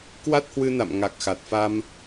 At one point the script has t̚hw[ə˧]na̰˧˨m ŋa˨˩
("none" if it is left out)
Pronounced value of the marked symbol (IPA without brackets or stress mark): ɨ˧